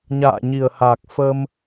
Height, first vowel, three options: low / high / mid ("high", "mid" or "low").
low